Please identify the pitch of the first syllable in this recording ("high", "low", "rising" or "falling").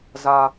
low